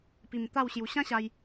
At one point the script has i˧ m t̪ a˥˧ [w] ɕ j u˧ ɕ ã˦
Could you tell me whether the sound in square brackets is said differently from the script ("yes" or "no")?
no